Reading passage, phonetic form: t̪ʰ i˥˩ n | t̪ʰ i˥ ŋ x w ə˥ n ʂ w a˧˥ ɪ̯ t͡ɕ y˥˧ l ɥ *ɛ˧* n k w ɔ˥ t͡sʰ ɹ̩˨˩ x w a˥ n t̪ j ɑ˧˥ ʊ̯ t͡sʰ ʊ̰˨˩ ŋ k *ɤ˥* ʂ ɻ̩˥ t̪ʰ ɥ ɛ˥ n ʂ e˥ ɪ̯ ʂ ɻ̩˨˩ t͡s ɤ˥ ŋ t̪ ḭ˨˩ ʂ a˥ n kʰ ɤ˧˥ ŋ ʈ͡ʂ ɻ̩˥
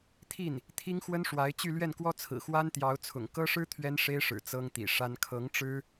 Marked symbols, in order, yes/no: no, yes

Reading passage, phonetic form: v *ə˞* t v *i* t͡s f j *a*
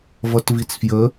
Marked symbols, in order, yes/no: no, yes, no

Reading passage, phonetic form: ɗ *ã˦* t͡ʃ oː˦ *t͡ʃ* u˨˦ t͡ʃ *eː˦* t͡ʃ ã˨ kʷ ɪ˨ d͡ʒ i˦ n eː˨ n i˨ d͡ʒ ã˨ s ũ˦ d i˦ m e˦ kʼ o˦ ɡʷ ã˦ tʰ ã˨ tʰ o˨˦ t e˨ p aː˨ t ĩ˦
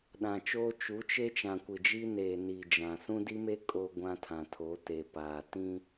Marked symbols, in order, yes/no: no, yes, no

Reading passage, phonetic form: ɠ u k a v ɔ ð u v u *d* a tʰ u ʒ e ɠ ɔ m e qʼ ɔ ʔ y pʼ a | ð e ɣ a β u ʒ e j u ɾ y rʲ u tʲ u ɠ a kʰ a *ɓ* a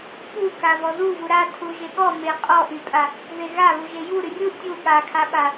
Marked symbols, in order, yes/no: no, yes

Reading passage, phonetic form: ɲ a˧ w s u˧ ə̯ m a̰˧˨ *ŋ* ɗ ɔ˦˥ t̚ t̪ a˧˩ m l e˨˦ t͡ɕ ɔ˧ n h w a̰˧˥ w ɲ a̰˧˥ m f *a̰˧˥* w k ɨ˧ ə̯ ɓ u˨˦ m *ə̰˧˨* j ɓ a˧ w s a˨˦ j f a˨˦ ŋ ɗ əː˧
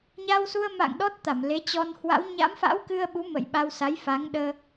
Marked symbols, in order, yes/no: yes, yes, yes

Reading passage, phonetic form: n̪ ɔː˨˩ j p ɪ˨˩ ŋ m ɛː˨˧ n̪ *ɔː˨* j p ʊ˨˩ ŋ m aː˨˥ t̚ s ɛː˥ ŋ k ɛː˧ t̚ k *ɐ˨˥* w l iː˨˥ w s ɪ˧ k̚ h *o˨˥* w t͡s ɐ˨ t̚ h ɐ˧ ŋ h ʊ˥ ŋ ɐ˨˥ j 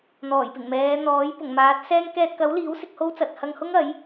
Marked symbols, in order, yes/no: no, yes, no

